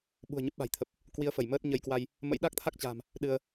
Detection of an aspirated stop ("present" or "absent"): present